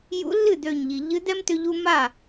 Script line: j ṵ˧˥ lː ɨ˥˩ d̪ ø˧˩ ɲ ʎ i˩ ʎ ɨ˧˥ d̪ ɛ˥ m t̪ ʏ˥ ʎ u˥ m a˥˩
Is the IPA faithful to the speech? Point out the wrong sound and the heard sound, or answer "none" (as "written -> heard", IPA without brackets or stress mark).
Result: none